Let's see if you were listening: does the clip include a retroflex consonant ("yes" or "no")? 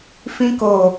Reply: no